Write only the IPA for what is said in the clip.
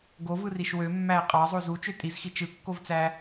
ɡ o v ɯ r i ʃ w ø mː æ ɪ̯ qʼ ɑ zˤ o z u t͡ʃ ø tʼ i z x i t͡ʃ ɯ kː o v t͡s æ

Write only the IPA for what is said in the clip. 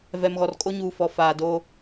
v ɛ˨ m ɣ ɔ˨ r kʼ o˦ ɲ uː˨ f ɔ˨ f aː˨ d oː˦

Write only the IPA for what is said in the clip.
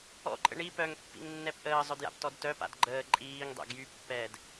ɔ̰ ǃʼ ə̰ ɳ i p œ ŋ pː ḭ ŋ nː ɛ p ʔ əː zˤ œ d j a̰ p t ɔ d t œ p a̰ d ɡ͡ǃ əː ǃʼ iː ŋ dˤ ɛ̰ ɡ j y pː ɛː d

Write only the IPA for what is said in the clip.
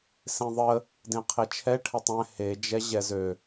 s ẽ ðˤ ə | d ẽ qʰ e t͡ʃʰ ɛ ʈʰ ə tˤ ɛ̃ h e d͡ʒ ɛ ʑ ɛ z ø

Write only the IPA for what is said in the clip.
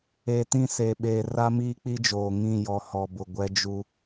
eː˨ t ĩ˦˨ s eː˨ ɓ eː˨ r a˦ m iː˦ k͡p i˦ d͡ʒ oː˨ ŋ ĩ˦˨ j ɔ˨ h ɔ˨ b ʊ˨ ɡʷ ɛ˦ d͡ʒ u˦

